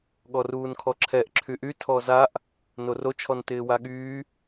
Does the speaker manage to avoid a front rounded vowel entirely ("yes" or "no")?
no